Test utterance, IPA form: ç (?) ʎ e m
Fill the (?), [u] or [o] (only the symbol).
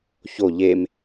o